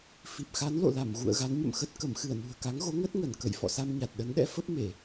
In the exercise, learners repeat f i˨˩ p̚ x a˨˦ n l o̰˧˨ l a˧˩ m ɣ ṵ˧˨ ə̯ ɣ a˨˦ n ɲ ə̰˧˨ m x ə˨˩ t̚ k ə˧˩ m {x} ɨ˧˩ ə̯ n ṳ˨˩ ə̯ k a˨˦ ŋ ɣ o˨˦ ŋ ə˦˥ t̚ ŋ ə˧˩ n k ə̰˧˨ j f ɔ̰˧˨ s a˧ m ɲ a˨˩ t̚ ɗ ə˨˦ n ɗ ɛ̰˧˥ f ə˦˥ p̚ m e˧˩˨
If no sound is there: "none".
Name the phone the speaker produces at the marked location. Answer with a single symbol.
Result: x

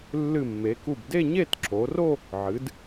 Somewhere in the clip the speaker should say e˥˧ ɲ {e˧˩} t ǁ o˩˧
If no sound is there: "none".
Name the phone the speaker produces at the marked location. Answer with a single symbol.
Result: e˥˧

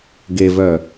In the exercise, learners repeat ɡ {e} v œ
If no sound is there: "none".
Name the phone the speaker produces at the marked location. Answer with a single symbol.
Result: e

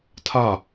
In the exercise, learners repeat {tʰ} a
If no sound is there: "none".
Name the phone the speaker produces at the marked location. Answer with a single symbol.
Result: tʰ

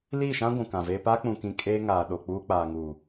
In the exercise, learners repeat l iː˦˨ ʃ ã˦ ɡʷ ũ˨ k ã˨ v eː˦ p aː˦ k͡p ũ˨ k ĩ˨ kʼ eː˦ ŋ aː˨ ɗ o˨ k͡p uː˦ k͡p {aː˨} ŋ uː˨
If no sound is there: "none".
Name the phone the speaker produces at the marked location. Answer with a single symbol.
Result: aː˨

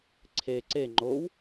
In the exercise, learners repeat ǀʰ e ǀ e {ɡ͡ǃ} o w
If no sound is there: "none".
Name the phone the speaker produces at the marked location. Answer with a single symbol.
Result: ŋ͡ǃ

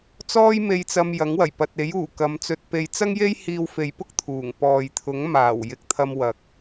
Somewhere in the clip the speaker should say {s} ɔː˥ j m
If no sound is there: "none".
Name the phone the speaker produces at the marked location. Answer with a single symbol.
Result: t͡s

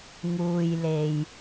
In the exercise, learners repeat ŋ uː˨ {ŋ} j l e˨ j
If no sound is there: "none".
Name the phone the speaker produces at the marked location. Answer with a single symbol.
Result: none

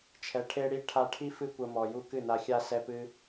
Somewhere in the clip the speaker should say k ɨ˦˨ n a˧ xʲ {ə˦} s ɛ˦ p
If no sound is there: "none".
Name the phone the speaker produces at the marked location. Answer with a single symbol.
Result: a˦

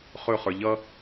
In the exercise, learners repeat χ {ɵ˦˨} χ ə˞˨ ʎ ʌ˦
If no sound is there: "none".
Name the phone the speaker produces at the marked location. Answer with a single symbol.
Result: ɵ˦˨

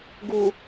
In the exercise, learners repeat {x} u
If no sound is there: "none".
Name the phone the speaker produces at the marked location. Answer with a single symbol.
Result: ɡ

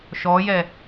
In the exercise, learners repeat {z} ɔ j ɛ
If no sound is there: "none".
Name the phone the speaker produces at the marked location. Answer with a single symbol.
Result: ʃ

